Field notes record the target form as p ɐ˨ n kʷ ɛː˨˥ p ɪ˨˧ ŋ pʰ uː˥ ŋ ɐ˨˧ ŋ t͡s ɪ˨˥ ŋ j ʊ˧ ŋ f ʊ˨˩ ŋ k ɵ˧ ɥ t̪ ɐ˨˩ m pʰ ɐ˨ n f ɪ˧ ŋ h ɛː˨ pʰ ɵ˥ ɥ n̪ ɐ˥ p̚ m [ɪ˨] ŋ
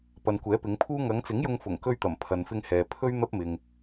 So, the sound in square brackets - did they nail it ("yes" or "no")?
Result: yes